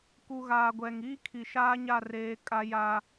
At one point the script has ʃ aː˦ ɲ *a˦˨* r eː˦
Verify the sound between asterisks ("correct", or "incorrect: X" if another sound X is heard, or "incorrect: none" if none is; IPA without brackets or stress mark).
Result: correct